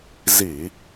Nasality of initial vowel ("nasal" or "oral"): oral